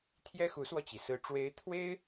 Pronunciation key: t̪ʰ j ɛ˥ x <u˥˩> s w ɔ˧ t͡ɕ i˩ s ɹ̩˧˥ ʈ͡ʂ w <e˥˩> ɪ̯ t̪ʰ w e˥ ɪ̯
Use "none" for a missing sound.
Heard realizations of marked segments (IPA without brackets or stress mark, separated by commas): u˧˥, e˧˥